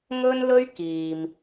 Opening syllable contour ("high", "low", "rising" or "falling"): high